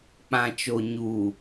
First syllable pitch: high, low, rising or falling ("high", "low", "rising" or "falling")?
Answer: low